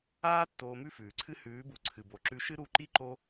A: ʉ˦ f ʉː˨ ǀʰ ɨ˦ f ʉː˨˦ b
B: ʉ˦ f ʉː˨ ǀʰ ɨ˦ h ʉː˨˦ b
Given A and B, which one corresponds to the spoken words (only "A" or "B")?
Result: B